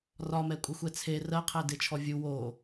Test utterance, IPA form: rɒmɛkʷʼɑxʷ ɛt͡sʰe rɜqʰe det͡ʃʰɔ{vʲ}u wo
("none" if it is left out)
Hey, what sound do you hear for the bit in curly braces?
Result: vʲ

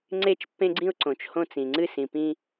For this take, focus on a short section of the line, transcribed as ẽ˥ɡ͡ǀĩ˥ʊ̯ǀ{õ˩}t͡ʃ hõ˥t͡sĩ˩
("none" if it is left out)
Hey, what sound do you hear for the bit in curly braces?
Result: õ˩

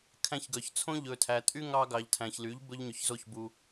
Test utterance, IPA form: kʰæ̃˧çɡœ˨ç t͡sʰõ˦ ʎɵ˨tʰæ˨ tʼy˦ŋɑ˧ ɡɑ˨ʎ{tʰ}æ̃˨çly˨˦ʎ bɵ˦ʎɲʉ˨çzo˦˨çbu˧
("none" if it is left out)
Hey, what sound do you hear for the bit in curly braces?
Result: tʰ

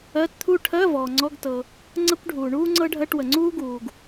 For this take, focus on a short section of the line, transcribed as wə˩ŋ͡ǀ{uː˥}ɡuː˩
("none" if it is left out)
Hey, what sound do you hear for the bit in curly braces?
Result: uː˥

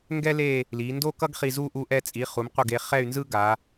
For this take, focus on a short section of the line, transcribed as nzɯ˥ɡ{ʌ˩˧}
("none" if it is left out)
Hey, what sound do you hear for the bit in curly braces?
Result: a˩˧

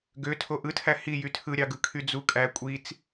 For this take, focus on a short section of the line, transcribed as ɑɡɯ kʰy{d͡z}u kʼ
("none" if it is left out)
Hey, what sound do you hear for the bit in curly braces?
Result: d͡z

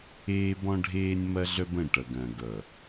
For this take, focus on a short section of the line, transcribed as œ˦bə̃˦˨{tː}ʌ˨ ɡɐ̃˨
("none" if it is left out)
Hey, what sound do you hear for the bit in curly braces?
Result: ʈ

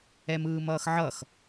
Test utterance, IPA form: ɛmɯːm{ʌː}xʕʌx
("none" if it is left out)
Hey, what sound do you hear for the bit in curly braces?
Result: ʌː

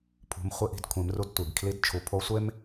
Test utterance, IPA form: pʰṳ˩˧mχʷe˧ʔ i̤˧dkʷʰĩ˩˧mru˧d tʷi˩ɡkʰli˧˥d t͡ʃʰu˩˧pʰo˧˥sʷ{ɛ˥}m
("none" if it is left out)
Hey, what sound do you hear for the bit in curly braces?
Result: e˥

